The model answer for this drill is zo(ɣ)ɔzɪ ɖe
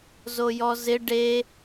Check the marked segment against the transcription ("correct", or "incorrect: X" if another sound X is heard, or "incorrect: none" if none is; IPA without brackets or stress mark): incorrect: j